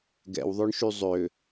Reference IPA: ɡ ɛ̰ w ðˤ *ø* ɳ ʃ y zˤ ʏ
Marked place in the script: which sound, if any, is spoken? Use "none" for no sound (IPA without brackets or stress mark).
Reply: ø